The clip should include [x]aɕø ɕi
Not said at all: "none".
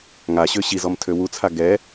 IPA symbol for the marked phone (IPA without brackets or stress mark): ŋ